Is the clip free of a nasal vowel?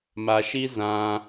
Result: no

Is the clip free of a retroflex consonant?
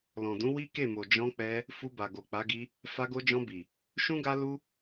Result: yes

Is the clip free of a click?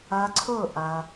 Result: no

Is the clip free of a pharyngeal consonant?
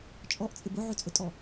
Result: no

